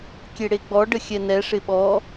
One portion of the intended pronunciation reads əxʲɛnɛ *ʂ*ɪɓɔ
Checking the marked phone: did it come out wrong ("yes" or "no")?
no